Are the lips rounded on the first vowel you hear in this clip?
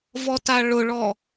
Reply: yes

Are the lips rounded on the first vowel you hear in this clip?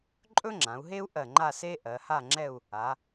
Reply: yes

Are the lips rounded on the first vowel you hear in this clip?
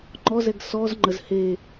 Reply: yes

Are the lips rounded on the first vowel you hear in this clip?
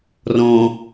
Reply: yes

